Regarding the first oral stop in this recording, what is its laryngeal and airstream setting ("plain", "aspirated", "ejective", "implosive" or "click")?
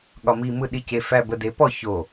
implosive